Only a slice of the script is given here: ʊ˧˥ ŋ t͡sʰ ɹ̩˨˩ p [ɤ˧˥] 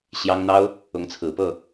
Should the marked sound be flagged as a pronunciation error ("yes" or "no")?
yes